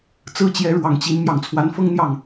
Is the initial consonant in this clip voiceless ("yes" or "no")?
yes